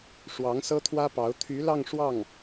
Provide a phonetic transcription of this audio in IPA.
ʂ w ɑ˧˥ ŋ s ɤ˥ t̪ʰ w ä˥ p ɑ˧˥ ʊ̯ t̪ʰ y˧˥ l ɑ˥˧ ŋ ʂ w ɑ˥˩ ŋ

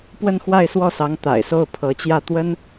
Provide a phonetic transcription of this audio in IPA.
p w ə˥˧ n x w a˥˧ ɪ̯ s w ɔ˥˩ s ɑ˧˥ ŋ t̪ a̰˨˩ ɪ̯ s o˥˩ ʊ̯ pʰ ɤ˧˥ t͡ɕ j ä˥˩ t̪ w ə˥ n

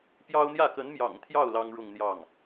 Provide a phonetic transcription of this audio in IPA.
p j ɑ˥ ʊ̯ n̪ j ä˥˩ k ə˧˥ n m j ɑ̰˨˩ ŋ t̪ʰ j ɑ˥˩ ʊ̯ l ɑ˥ ŋ ɻ ʊ˥˧ ŋ n̪ j ɑ˥˩ ŋ

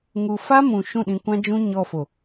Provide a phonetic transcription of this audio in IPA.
ŋ u˧ f a˦ m ũ˨ ʃ ũ˦˨ ɗ ĩ˧ kʷ ã˦ d͡ʒ ũ˦ ɲ ɔ˧ f o˨

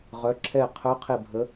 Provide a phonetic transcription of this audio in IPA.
ʁ œ˩˧ ǁʰ ɛ˧˩ qʰ œ˧˥ qʰ e˧˩ bʱ ə˧˥

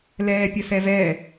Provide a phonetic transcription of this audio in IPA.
l ɛː pʲ ə s ɛ v ɛ

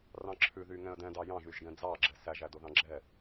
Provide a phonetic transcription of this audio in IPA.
r ɑ̃ ǁʰ ʉ ð y ŋ ɛ̃ ə̯ d ɛ̃ d ɑ j ɑ̃ ʒ y ʒ ɡ ɛ̃ d͡z ɑ ɡ͡ǁ ɛ s æ ʒ æ d o ð ɑ̃ ɡ͡ǁ ɛ

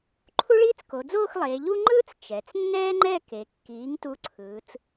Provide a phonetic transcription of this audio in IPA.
ǃʰ u˥ ɭ iː˥ t͡s k o˩˧ d͡z oː˥˧ x lˠ eː˩˧ ʎ u˥ ŋ͡ǃ ɯː˥ t͡s t͡ʃ ɛ˩˧ t͡s nː ɛː˥ ŋ͡ǃ ɛ˥˧ k e˩˧ kː iː˩˥ ŋ t u˧˥ ǀʰ ɯː˩˧ t͡s

